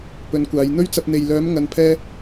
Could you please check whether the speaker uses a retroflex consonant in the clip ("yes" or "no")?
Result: no